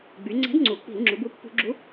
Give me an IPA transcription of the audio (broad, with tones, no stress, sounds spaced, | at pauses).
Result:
ɡ͡b y˩˧ ŋ͡ǀ ɛ̤˨˥ d ŋ͡ǀ u˩˧ k͡p i̤˧˩˧ l ŋ͡ǁ u˩˧ b u˨˥ pː ṳ˧˩˧ ɡ͡ǁ u˨˥